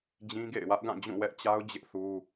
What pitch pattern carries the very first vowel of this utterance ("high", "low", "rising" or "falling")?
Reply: high